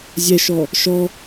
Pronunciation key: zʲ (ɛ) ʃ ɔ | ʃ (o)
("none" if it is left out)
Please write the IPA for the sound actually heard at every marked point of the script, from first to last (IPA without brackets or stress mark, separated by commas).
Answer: ɛ, ɔ